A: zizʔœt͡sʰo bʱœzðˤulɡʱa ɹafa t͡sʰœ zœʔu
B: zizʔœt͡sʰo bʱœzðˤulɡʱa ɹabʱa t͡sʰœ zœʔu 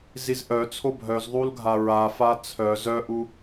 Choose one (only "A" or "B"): A